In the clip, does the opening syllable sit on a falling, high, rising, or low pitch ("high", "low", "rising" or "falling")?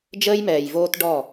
high